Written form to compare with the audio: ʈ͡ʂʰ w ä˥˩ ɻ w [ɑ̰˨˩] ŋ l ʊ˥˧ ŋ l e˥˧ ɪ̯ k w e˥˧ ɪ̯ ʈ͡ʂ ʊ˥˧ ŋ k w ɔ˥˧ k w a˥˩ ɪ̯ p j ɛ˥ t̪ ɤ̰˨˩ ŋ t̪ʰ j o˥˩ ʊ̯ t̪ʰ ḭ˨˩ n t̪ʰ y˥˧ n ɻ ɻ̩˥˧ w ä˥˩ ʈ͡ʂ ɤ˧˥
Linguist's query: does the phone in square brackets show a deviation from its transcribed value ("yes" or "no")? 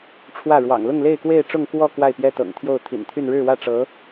no